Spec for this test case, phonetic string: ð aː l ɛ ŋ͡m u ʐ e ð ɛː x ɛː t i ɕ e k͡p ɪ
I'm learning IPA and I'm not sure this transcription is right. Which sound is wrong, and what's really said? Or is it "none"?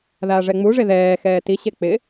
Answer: l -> ʐ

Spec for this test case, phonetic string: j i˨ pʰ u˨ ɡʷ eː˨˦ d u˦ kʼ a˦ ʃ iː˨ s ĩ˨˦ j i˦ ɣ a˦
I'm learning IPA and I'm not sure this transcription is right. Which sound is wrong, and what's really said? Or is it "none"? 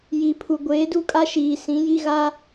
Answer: none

